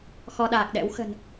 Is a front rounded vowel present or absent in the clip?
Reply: absent